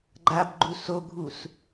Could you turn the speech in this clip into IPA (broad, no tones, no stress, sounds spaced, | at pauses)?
ɡ͡ǃ a b ɡ͡ǃ u s o ɡʱ u s